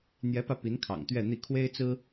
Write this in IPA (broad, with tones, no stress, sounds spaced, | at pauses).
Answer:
n̪ j ɛ˧˥ p ä˧ p i˧˥ n kʰ ɑ̰˨˩ ŋ t̪ ɥ ɛ˥˧ n̪ i˥˩ kʰ w e˥ ɪ̯ t͡s ɹ̩˥